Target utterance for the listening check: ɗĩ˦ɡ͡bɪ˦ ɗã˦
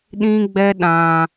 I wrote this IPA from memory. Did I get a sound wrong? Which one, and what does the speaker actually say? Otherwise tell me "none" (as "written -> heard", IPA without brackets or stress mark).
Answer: ɪ˦ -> ɛ˦